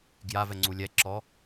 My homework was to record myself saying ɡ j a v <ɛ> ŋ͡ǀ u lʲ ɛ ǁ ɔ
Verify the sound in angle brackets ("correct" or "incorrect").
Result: correct